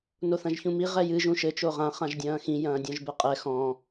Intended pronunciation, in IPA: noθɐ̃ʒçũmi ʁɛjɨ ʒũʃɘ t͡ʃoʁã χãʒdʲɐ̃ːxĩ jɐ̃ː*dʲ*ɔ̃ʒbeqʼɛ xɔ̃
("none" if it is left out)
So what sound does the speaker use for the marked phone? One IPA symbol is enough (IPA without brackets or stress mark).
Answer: dʲ